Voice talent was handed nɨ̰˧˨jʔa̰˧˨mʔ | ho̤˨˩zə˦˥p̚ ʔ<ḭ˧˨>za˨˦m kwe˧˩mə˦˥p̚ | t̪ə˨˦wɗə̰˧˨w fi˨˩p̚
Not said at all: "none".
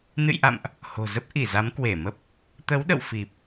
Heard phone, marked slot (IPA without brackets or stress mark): i˧˩